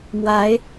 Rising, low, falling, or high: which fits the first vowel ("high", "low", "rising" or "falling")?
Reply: rising